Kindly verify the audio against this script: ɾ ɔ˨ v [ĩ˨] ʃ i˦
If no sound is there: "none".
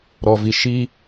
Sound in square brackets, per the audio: i˨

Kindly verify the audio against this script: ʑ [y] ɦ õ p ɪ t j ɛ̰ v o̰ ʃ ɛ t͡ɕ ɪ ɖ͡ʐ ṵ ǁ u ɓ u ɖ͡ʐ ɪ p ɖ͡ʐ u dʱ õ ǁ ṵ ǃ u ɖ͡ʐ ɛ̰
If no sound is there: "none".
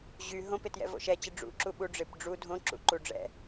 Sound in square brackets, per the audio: y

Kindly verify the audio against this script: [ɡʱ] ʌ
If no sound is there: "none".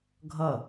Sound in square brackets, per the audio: ɡʱ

